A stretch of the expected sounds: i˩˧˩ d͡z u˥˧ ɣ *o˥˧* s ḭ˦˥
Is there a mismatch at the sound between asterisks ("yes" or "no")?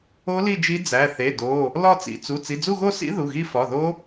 no